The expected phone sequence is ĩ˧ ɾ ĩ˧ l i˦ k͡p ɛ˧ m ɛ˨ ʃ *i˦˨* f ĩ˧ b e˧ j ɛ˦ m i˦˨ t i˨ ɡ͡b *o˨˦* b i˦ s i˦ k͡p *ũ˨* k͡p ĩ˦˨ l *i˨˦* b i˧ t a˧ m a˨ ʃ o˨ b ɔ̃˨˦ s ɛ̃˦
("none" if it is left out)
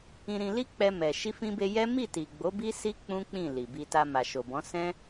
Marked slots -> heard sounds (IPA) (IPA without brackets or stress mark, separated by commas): i˧, o˨˦, ũ˦, i˨